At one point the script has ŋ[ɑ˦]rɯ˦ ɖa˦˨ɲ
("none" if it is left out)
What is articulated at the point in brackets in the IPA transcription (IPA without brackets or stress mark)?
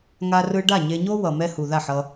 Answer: a˦